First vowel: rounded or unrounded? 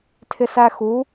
unrounded